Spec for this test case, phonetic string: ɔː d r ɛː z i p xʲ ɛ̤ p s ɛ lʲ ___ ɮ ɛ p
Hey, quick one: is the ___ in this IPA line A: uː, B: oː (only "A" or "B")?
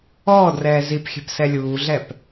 A